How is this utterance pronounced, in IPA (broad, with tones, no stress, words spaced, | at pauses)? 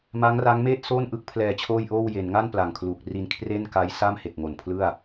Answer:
ma˦˥ŋra˦˥ŋmeː˥˩t̚ soː˥˩nʔɯ˦˥k̚ pʰlɛː˧t͡ɕʰoː˥˩jʔoː˥˩w je˩˦nŋa˥˩n pla˨˩ŋkʰluː˨˩k̚ ri˧nkʰre˥˩nka˦˥j sa˥˩mhe˨˩k̚ŋo˨˩npʰlɯ˥˩a̯